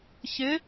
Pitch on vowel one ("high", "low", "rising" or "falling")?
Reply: rising